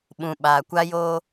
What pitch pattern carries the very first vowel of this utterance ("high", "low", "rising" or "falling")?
low